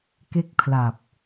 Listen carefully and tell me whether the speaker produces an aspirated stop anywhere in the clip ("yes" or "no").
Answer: yes